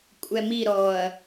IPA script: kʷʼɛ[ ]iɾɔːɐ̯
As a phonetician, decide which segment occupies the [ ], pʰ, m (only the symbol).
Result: m